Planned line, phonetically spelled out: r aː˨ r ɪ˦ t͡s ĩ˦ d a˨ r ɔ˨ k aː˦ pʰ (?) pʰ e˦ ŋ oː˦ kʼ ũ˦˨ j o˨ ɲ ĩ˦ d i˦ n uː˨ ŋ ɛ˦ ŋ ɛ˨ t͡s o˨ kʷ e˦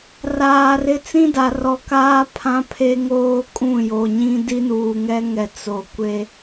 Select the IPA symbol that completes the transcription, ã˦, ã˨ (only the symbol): ã˦